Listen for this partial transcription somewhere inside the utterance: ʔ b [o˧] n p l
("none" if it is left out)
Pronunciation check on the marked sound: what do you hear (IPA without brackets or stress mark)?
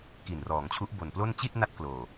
o˨˩